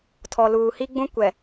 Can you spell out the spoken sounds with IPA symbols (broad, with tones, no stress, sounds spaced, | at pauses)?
tʰ ɔ˨ l uː˨ h i˦ ɡ͡b ũ˦ kʷ ɛ˨